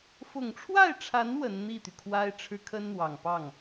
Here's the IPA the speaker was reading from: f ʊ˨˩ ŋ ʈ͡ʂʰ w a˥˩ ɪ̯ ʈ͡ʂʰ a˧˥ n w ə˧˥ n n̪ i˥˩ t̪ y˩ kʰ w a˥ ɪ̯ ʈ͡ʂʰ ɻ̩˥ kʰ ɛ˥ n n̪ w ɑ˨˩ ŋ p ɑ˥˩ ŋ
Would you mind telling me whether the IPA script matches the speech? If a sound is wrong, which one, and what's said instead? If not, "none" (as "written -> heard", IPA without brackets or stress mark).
ɛ˥ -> ə˥